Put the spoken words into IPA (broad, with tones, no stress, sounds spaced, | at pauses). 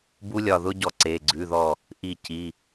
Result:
b u˦˥ lʲ ɒ˧˩ ð ʊ˦˥ ɟ ɔ˧˩ ǀ e˩˧˩ ɡ͡ǀ ʉ˩˧˩ ð ɔ˧˩ | ʔ i˧˩ c i˩˧˩